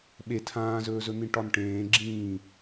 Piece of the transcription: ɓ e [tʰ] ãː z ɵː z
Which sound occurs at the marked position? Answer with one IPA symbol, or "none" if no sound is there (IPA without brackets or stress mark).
tʰ